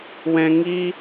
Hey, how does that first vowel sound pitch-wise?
high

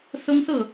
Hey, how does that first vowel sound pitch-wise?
high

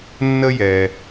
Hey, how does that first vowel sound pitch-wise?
high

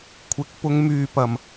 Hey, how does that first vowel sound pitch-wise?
rising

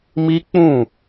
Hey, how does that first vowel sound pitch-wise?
high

